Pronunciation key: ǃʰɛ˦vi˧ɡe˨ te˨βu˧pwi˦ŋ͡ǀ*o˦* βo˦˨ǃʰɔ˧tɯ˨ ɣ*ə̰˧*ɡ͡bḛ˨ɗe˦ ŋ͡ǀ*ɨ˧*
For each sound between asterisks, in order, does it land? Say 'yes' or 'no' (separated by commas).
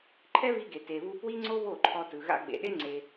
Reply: yes, no, no